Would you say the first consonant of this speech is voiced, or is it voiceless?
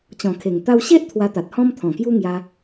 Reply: voiceless